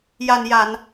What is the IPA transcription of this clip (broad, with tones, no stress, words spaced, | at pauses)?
ja˨˩nja˨˩˨n